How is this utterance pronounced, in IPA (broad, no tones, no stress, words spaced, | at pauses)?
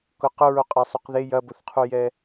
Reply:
kʊqʊ ɹoqʼasˤuqðe jɐbʊθqʰujɛ